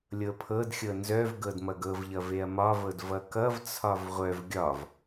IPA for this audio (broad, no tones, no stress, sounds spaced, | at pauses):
lʲ ɤ pʰ ɤ d xʲ ɤ n z œ v ɡ ɤ d m ʌ ɡ ɤ v ʎ ʌ v e ɐ̯ m ɒ v ɤ d v ʌ k ʌ v t͡sʰ ɒ v ʁʷ œ v ɡʲ ɒ v